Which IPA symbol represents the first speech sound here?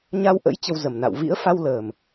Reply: ɲ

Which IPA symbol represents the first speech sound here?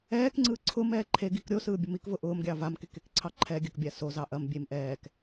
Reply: ɛː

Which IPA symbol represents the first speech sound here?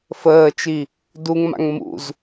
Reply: f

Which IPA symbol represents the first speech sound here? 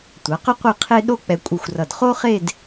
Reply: tʷ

